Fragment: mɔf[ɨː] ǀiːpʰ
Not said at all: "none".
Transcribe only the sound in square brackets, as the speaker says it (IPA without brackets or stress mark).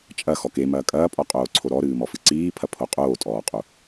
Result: ɨ